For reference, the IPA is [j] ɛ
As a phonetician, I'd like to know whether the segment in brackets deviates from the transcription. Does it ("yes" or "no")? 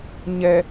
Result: yes